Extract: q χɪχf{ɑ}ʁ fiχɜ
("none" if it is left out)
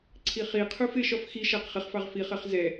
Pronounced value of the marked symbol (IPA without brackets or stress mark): ɑ